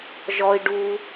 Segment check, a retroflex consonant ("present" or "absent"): present